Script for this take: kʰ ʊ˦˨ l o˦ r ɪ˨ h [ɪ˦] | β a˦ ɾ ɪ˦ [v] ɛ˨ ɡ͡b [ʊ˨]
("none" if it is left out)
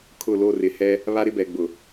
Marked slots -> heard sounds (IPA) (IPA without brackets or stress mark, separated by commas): ɛ˦, b, ʊ˨